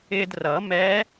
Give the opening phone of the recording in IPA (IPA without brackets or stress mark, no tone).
ɪː